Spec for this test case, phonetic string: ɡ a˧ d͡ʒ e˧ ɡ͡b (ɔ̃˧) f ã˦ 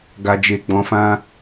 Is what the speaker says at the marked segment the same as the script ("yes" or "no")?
yes